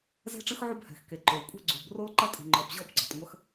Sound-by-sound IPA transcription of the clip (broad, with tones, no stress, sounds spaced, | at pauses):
z ɛ̤˥ ʈ͡ʂ ɨ˥ x ʕ u˥ b h ɛ̤˩ x k e˩ ǃ o˩ l kʷʼ ɛ̤˥ ɡ͡ǀ u˩ b r o˥ l ǃ ɐ˥ tʼ i̤˩ ŋ͡ǃ ɔ˩ b ʑ ɔ˥ b ɡ͡ǀ ɔ˩ tˤ ŋʷ ɐ˥ x